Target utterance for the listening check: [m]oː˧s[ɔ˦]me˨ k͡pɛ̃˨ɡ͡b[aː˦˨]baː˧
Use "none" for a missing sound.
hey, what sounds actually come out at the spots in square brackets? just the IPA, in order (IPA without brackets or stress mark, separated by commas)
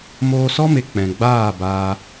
m, ɔ˦, aː˦˨